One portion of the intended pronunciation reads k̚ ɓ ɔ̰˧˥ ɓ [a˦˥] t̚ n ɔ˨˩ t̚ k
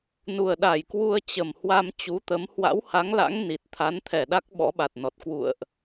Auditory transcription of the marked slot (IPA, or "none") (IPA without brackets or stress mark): a˨˩